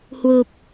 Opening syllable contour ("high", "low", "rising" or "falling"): low